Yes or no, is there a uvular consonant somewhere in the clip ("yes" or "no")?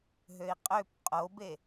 yes